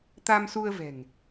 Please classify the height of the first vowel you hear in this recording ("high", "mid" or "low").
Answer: low